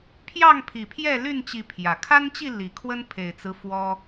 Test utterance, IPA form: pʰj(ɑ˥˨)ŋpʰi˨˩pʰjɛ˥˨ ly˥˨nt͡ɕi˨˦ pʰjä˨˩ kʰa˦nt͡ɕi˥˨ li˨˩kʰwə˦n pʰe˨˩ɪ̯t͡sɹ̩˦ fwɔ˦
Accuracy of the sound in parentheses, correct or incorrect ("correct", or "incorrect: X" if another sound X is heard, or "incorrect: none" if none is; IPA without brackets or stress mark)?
correct